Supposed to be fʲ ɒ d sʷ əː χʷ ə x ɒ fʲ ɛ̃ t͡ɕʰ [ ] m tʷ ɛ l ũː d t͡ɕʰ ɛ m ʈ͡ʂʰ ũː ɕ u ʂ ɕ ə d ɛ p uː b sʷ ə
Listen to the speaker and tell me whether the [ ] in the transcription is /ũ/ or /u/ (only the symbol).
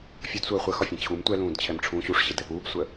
u